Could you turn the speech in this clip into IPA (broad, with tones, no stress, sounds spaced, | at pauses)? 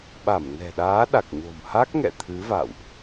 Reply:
ɓ a˧˩ m n ɛ̤˨˩ ɗ aː˨˦ ɗ a˨˩ k̚ ɲ o̤˨˩ m h a˦˥ k̚ ŋ ɛ̰˧˨ t̪ʰ ɨ˨˦ v a̰˧˨ w ʔ